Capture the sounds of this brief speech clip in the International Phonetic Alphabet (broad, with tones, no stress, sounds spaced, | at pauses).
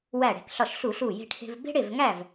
w æ˧˩ ɽ e̤˧˩ k ɬ ɒ˧˩ ʃ ɬ u˧˩˧ ɬ u˧˩ j e̤˧ ʈʰ e̤˧ v b e̤˥ ɽ e˥˨ v ŋ æ˥˨ v